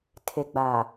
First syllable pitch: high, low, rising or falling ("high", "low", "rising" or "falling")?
low